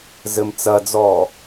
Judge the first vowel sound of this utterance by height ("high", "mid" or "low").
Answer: mid